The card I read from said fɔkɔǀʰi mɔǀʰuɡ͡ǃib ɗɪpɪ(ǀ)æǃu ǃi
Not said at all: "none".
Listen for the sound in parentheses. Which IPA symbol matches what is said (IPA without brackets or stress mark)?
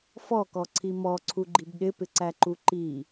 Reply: ǀ